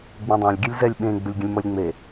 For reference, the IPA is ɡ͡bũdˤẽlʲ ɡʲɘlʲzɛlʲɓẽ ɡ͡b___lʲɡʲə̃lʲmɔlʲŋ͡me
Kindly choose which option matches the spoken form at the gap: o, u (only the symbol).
u